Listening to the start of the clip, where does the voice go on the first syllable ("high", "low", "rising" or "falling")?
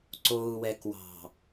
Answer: low